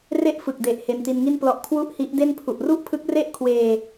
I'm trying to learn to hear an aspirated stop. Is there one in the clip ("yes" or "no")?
yes